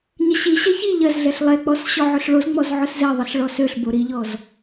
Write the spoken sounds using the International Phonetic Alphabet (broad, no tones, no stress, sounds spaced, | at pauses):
ɲ ɐ ɕ i ɕ ɐ ç i ʎ ɐ z ɮ ɛ ɬ lˠ ɛ k͡p ɔ s ɕ ɔ ʕ ø ɬ ɭ o z ŋ͡m ɔ z ʕ ʊ s z ɛ ðˤ ɛ ɬ ɭ ɔ s ø ɬ b o ɾ i ʎ ɔ z